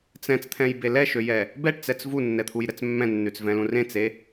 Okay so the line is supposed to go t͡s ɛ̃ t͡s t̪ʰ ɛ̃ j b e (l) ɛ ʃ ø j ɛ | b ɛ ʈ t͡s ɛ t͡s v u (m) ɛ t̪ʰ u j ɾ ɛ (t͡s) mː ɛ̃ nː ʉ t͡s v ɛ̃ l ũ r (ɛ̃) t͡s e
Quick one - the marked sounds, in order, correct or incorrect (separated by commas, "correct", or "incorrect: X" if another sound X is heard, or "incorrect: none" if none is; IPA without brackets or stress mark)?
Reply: correct, incorrect: nː, correct, incorrect: ẽ